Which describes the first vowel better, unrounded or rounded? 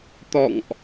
rounded